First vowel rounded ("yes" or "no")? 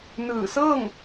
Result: no